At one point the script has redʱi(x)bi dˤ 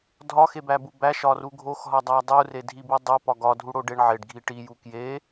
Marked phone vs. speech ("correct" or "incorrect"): incorrect